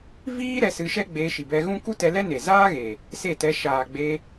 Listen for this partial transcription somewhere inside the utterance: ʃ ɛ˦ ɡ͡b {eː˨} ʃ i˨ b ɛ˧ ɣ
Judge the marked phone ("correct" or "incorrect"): incorrect